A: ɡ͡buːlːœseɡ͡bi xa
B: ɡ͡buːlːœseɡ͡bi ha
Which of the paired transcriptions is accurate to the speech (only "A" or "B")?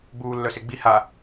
B